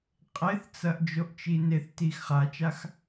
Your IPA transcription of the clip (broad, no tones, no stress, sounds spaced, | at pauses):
qʼ e θ t͡s ɐ ʔ d͡ʒ o ʔ t͡ʃ i n e θ t i x χ a t͡ʃ a x